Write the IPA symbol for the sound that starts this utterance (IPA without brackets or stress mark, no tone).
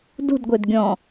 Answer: d